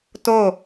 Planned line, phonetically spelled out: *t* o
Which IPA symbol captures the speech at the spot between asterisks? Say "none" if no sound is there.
t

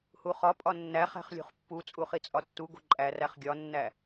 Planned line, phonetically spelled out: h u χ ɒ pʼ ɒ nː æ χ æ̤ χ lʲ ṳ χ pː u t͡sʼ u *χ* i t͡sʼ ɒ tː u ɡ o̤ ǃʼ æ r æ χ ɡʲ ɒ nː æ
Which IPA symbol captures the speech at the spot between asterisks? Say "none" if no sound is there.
χ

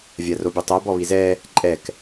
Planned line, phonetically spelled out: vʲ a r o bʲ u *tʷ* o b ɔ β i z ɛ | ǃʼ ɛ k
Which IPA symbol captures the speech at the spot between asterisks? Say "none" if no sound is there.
tˤ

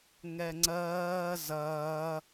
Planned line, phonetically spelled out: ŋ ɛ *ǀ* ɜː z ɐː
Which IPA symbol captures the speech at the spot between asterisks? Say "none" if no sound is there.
ŋ͡ǀ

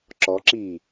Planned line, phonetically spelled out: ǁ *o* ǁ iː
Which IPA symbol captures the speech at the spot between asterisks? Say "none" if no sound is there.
ɔ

